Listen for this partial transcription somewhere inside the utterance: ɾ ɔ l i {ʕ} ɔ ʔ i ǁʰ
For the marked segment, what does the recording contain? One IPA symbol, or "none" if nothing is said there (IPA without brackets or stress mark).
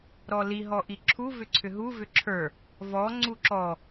ɦ